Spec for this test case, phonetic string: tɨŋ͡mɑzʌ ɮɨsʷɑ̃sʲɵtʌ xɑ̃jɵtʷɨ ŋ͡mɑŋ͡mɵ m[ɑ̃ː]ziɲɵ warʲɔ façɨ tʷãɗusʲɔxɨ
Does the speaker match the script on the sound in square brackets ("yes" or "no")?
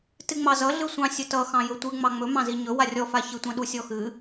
no